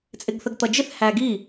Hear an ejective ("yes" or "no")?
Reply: yes